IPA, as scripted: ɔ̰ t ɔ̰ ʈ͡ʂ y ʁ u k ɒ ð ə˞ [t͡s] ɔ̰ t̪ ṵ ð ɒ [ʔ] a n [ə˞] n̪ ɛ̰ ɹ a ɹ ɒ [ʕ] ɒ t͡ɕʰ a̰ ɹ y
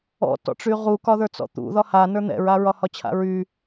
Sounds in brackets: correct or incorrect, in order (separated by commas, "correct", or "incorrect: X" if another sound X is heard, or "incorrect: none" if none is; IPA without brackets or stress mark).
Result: correct, incorrect: h, correct, incorrect: h